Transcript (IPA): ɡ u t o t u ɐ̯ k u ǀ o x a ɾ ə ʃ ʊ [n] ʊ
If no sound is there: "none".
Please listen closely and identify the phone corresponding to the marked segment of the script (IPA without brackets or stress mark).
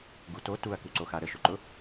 ǃ